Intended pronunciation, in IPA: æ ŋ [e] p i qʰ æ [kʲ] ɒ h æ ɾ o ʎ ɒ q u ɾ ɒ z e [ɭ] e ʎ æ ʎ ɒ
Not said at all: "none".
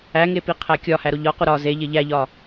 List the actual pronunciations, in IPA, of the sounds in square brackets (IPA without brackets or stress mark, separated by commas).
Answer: e, kʲ, ʎ